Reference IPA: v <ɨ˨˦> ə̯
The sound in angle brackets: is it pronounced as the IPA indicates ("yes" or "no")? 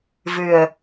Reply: no